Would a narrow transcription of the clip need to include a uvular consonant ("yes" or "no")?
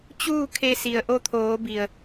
no